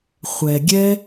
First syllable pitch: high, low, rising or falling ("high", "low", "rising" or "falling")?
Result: low